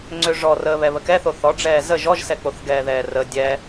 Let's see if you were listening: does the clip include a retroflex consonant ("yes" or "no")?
yes